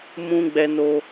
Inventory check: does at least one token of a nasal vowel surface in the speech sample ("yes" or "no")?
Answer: yes